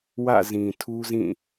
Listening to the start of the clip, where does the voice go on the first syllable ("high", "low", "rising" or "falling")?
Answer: falling